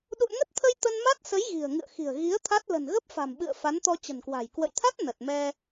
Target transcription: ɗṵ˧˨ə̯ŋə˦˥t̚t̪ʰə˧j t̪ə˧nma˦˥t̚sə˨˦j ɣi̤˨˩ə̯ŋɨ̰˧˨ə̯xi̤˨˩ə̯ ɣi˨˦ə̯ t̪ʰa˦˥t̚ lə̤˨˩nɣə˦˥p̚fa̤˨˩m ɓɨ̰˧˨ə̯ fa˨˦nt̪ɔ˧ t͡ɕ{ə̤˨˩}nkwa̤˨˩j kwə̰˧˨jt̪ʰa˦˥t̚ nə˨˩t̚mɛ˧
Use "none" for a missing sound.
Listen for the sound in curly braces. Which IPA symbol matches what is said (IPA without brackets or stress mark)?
ə̤˨˩